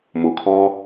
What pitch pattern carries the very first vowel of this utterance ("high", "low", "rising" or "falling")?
low